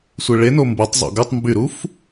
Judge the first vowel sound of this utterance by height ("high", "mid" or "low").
high